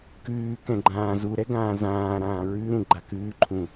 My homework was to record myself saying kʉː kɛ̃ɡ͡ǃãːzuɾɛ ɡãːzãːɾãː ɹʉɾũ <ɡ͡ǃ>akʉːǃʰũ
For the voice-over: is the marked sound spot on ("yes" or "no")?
yes